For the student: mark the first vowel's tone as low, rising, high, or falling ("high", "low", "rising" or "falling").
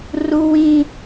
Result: high